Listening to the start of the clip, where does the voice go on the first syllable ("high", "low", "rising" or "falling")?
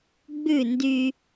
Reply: falling